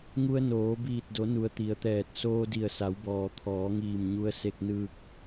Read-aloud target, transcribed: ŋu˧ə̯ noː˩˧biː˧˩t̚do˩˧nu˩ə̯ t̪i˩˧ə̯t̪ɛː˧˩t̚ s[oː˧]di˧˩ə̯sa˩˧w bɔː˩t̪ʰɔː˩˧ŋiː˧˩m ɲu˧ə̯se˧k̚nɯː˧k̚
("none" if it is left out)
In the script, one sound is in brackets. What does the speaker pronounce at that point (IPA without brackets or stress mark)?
oː˧